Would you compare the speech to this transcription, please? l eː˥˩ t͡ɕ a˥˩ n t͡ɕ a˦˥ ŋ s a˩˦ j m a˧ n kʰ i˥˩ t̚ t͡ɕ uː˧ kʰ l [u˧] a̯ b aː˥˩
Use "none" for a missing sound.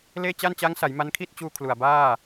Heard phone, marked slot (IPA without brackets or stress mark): u˨˩